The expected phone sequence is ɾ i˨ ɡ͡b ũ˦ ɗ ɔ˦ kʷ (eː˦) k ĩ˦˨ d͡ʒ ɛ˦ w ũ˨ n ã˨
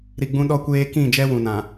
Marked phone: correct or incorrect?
correct